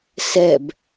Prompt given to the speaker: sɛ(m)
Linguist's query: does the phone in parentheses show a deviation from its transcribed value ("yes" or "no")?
yes